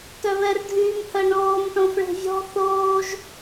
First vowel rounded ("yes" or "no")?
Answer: yes